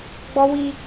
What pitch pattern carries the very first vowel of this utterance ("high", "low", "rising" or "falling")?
high